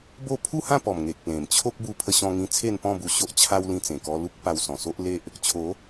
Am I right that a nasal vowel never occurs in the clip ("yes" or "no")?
no